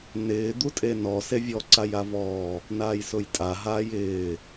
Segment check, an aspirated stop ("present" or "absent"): absent